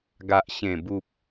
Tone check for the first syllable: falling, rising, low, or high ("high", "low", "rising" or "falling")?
low